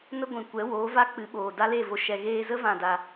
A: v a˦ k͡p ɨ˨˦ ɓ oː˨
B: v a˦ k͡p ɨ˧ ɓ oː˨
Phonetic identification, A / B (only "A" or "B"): A